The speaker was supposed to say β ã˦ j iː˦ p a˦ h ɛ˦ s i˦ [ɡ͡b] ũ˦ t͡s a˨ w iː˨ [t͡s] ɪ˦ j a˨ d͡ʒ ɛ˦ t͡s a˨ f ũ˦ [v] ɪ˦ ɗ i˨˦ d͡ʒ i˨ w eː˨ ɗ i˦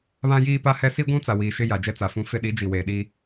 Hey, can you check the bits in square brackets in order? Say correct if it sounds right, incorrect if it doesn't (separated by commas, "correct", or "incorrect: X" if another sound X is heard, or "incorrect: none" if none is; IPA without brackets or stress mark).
incorrect: ɡʷ, incorrect: ʃ, incorrect: f